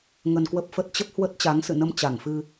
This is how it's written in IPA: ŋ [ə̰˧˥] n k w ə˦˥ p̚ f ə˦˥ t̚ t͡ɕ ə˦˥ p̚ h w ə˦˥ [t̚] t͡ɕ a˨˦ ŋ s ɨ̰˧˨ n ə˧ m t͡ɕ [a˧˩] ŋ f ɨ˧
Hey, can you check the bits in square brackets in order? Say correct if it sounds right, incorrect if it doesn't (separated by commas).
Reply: incorrect, correct, correct